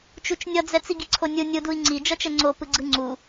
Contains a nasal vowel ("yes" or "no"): no